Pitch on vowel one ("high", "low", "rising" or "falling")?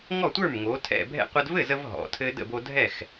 falling